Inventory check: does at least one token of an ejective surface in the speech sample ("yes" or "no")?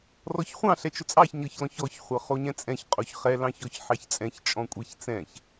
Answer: yes